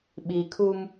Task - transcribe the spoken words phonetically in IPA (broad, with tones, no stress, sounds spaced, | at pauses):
ɓ i˨ kʰ u˦ m